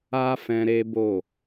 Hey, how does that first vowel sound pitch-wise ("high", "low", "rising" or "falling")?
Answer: high